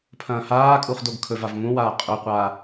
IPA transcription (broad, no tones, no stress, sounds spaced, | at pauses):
pʰ ɐ̃ː h aː kʼ u χ d o ɡ kʰ ɵ v a v m ũ w aː qʼ ɵ qʷ aː